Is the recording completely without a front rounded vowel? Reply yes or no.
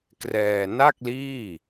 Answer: yes